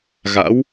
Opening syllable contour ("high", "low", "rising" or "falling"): rising